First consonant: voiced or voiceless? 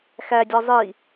voiceless